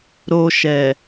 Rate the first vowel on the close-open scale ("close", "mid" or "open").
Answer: mid